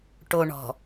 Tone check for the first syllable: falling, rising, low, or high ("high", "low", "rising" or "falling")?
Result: low